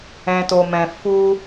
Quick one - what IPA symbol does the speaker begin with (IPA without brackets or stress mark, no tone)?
ɛ̃